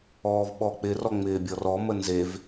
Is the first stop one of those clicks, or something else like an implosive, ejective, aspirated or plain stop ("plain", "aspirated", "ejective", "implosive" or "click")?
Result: implosive